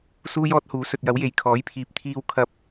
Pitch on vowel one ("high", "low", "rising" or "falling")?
high